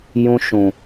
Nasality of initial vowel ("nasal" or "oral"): nasal